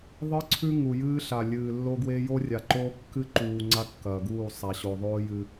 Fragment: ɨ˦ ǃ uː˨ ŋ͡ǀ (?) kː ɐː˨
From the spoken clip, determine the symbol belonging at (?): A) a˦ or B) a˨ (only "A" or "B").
A